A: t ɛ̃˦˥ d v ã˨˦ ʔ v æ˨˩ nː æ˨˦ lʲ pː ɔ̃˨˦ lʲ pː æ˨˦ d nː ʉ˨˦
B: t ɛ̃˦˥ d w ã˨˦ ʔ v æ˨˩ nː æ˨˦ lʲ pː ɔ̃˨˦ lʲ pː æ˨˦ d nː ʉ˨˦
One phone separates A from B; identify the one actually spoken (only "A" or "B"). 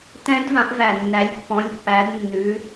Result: A